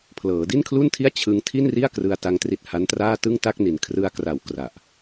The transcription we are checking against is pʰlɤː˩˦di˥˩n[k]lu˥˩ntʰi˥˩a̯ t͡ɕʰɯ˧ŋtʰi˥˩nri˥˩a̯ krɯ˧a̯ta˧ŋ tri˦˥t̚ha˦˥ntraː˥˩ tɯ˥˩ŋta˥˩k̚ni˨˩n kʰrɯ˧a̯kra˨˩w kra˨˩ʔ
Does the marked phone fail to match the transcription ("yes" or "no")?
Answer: yes